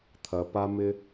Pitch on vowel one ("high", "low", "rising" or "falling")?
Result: low